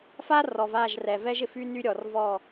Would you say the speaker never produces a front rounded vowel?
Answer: no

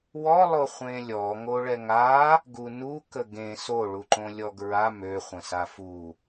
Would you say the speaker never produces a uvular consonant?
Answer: no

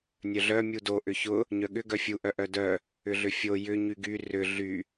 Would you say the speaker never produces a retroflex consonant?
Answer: yes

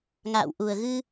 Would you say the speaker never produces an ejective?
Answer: yes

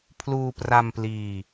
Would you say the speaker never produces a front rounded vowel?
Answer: yes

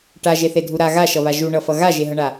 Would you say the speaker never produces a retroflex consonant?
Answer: no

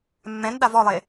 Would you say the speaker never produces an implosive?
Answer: no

